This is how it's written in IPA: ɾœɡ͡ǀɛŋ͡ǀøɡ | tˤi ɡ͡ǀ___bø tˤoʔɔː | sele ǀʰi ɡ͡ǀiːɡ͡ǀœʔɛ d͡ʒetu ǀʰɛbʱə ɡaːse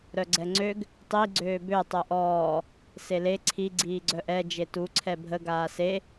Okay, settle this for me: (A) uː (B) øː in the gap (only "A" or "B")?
B